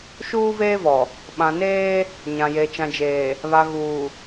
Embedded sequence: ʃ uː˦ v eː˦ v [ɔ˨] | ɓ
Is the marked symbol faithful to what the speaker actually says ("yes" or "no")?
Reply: yes